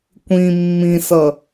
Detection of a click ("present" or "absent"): absent